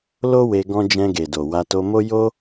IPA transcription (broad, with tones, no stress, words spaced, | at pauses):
lo˦we˧ ɡɔ̃˦ d͡ʒɛ̃˧ɡe˨do˨ wa˧to˧mo˦ jo˦